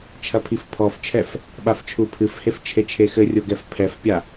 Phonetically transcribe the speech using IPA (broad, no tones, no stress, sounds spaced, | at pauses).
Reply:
t͡ʃʰ ɐ pʰ i f pʰ ɔ f t͡ʃʰ ɛ f | ɓ a f t͡ʃʰ u pʰ ɨ f h e f t͡ʃʰ e t͡ʃʰ e x ɘ rʲ o ɡ ɛ f pʰ ɛ f pʲ a